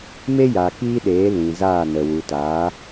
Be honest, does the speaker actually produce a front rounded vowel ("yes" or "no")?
no